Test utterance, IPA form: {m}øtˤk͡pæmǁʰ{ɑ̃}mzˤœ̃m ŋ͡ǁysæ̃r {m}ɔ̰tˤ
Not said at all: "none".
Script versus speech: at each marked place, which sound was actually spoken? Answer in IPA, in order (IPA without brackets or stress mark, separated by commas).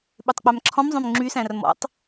ɓ, ɔ̃, m